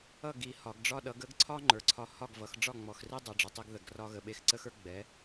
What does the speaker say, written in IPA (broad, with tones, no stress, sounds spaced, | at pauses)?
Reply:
ʌ˥˩ ɡ i˨˩˦ h ɒ˨˩˦ ɡ ɖ͡ʐ ɒ˦ ɗ ʌ˨˥ ɡ ə˨˥ ɡ ǀʰ ɒ˦ ŋ͡ǃ ə˞˨ ǀʰ ɒ˦ h ɒ˥˩ ɡ v ʌ˨˩˦ x ɖ͡ʐ ɒ˥˩ ŋ͡m ɔ˨ x r i˦ dˤ ə˨˩˦ ɖ͡ʐ ə˨ tˤ i˦ ɡ ð ə˨˩˦ ɡ r ɒ˦ ɣ ə˨˥ ɓ e˦ x ǀ ə˦ x ə˞˦ ɡ͡b ɛ˨˥